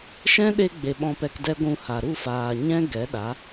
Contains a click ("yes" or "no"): no